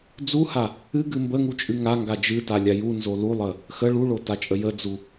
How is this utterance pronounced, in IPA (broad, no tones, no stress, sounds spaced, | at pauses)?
d͡z u h a | ɨ ɡ ɨ m b ə ŋ u t͡ʃʼ ɨ ŋ a ŋ ɡ a d͡ʒ ɨ t a lʲ a j u n z o l u lˠ ə | x ə ɭ u ɭ o t a t͡ʃʼ ə j ə d͡z u